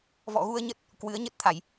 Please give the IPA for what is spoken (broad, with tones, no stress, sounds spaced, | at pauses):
v ɔ̰˧˨ ɣ u˧ ə̯ ɲ ə˦˥ t̚ | k w ɨ˨˦ ə̯ ɲ ə˦˥ t̚ t̪ʰ a˧˩˨ j